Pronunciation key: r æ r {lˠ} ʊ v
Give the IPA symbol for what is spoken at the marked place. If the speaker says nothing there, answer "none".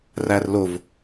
l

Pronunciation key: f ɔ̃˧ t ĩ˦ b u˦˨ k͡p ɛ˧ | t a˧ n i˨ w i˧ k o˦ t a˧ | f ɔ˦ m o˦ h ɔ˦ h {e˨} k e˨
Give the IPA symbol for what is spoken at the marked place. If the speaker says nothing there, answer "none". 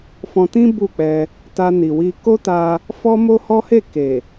e˦˨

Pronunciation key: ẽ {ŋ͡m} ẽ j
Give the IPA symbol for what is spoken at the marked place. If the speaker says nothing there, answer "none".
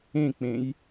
k͡p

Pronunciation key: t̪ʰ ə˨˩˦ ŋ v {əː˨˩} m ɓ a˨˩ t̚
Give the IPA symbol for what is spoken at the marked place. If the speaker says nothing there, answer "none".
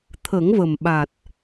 ə˨˩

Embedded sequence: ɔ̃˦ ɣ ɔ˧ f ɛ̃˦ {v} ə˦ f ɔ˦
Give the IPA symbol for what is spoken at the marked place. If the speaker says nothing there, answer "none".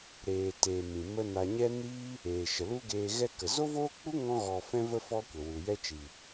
v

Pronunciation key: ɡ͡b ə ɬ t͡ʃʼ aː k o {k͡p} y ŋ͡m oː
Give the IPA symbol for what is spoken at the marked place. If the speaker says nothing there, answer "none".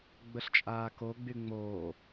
ɡ͡b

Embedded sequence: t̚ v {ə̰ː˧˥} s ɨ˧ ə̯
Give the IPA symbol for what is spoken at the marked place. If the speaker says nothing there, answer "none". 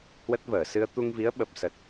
əː˧˩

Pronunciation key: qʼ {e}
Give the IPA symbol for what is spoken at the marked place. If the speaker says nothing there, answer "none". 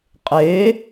e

